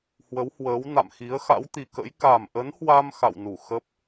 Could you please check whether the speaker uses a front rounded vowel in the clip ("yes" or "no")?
no